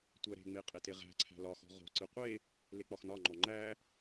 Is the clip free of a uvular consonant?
no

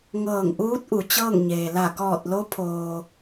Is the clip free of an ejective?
yes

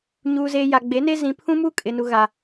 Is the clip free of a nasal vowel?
no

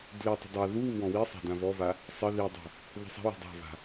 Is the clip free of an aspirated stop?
yes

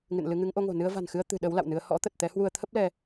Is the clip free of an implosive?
no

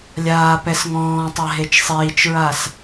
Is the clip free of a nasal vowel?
no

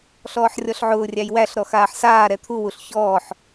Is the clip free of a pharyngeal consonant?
no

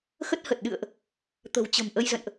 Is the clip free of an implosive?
no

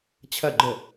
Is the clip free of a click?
no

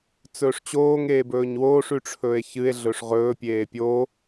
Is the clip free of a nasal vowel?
yes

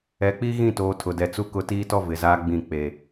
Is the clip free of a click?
yes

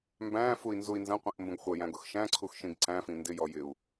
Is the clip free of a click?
no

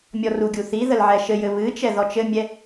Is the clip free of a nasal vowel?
yes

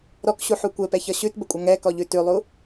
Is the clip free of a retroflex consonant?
yes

